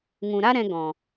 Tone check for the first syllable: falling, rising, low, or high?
low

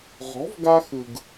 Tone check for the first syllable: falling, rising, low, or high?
rising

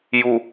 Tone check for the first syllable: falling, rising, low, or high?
low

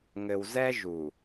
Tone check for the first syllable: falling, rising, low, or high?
low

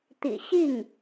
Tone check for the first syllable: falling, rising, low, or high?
low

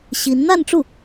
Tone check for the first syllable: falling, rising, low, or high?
rising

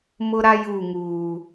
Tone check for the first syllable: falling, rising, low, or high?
high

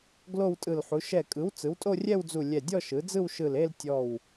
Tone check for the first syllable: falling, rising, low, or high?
falling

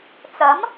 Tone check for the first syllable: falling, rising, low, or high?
rising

